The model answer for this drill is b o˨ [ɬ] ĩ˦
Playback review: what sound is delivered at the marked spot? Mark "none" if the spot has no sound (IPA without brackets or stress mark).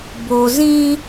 z